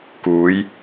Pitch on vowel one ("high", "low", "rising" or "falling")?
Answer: rising